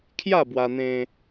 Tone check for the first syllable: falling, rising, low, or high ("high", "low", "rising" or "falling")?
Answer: falling